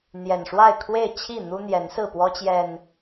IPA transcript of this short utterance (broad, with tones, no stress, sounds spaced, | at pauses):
n̪ j ɛ˨˩ n ʂ w a˥˨ ɪ̯ kʰ w e˥˨ ɪ̯ t͡ɕʰ i˥˨ n̪ u˦ n̪ j ɛ˨˦ n s ɹ̩˥˨ p w ɔ˦ t͡ɕ j ɛ˨˩ n